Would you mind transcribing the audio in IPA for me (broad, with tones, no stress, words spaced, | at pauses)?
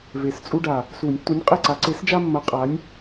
ve˨˩st͡sʼu˦ɖa˨˩ | su˨˩˦nʲtːu˨˥nʲ qʼe˦˨ǀa˨˥ ǀe˨˥sd͡ʒa˦mːɐ˨˥ qʼa˨˥nʲ